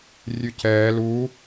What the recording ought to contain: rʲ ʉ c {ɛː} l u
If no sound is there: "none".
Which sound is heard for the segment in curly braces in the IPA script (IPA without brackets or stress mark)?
ɛː